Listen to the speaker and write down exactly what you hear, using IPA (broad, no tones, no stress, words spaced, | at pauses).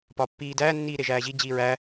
pɒpːiːdæː nːiːɾeʒæːʑi d͡ʑiːɹæ